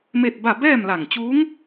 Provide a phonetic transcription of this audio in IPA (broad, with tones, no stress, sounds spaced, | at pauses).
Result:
m e˥˨ t̚ b a˥˨ b ɛː˥˨ m l a˧˩ ŋ t͡ɕ uː˧˥ ŋ